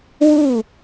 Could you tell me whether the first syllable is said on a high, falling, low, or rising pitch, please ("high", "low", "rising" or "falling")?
falling